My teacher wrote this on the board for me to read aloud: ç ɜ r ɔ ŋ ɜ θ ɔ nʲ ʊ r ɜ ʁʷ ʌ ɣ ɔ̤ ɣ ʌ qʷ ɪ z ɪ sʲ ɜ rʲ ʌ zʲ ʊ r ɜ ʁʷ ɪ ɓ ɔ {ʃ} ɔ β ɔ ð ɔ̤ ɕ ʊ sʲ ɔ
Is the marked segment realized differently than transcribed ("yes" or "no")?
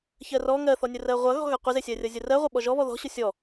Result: yes